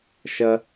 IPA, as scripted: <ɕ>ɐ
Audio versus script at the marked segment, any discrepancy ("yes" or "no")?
yes